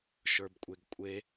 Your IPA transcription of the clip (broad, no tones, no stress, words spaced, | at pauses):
ʃə˞bkʷʼeɡkʷʼe